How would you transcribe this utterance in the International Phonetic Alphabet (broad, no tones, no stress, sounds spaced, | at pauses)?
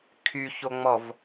kʰ y ç o ŋ͡m ɔ v